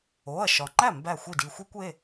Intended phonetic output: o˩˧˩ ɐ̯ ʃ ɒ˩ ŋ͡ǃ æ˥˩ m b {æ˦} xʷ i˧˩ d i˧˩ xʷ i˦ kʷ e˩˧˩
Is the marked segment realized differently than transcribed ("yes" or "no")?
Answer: yes